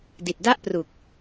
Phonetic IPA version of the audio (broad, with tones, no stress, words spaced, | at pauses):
di˨˩t̚da˥˩ʔpru˨˩k̚